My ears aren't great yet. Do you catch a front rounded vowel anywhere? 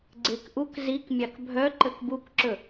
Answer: yes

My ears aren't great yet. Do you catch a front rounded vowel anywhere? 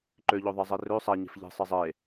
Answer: yes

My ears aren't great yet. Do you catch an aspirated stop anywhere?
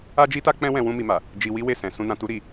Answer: no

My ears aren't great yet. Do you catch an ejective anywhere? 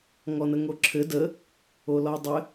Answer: no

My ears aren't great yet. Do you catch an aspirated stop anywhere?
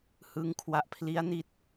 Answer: yes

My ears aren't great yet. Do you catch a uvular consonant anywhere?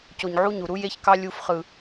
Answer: yes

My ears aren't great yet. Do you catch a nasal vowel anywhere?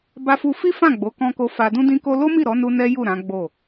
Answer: yes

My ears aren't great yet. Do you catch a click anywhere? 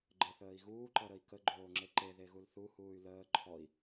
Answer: yes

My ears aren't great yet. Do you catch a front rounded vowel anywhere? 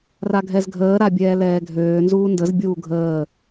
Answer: yes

